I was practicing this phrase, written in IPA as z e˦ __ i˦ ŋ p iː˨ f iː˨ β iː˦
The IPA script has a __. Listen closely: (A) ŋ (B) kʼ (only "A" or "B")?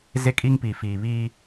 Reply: B